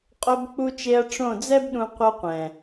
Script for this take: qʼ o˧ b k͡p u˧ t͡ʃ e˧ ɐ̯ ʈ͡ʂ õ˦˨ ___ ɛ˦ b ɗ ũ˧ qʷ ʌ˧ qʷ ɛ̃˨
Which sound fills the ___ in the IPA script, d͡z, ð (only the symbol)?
d͡z